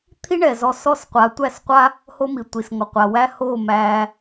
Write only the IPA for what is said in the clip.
t̪ʰi˦ɳɛ˨zɔ˧ sɔ˦˨sqʷa˨˦tʷæ˦˨sqʷa˦ | ho˦mi˨tʷi˨s ŋɔ˨qʷa˨wæ˦ ho˦˨ mæ˧

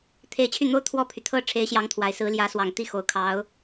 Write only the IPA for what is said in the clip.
t̪ʰe˧˥ɪ̯t͡ɕʰy˥˩n̪o˥ʊ̯ t̪ʰwɔ˥˩pʰy˩t̪ʰɤ˥ ʈ͡ʂʰe˧˥ɪ̯ɕjɑ˧˥ŋ t̪ʰwa˨˩ɪ̯sɹ̩˧˥ ljä˧˥swɑ˨˩ŋt̪i˥˩ xo˨˩ʊ̯kʰɑ˧˥ʊ̯

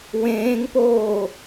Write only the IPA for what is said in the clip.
wẽːŋpoː

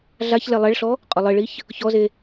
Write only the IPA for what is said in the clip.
ɮaçlɛ lˠɛɭɬɔ | qʼʊlˠɪɭiç | çɔze

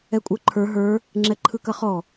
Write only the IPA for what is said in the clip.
ɛkʷʼə˞ǃʰə˞ ɦə˞ | ŋ͡ǁɛǃʰɯkɐχɔ

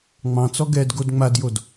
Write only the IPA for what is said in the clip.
ŋ͡mɑ̃t͡sɔ ɡɛdɡod ŋ͡madjod

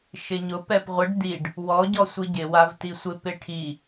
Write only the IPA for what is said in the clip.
ʃɪɲʊ pɛpʁʷɪɖ diɖ | wɔɟɔ sʷiɟɪ wavtisʷɪ pɪʈʰi

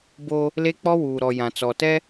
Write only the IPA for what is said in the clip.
bo˦ | le˦ k͡pɔ˦wuː˨ɾɔ˨ jã˨t͡sɔ˨ tɛ˦

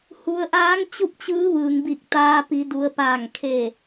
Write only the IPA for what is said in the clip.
hu˩˧ə̯ ʔaː˧˥ŋt͡ɕu˥˨p̚t͡ɕɯː˧˥ ʋɯː˩ŋbi˧˩k̚t̪aː˧ pi˩˧du˩˧ə̯paː˧˩ŋkʰe˧˩

